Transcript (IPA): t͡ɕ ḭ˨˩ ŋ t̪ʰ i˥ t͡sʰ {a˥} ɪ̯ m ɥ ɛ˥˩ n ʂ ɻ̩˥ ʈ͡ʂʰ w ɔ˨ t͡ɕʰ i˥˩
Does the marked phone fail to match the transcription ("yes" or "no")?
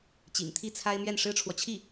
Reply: no